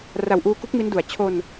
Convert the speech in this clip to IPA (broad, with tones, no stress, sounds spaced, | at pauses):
r a˨˩ w ʔ uː˧ k u˦˥ k̚ m i˦˥ n d u˨˩ a̯ t͡ɕʰ o˧ n